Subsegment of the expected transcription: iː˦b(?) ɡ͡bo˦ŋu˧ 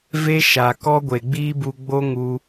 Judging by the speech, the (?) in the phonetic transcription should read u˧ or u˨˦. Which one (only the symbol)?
u˧